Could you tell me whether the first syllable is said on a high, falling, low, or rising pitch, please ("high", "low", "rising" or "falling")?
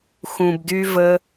low